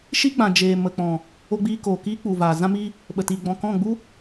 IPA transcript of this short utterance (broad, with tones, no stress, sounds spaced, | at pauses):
ʃ i˦ ɡ͡b ã˨ d͡ʒ eː˨ m ə˨ k͡p ɔ̃˨ | o˧ ɡ͡b iː˧ k oː˨ k iː˦ k͡p u˨ v aː˨ z ã˦ m i˦ | ɓ ə˨ t iː˨ ɡ͡b ɔ̃˨ k ɔ̃˦˨ ɡ͡b u˦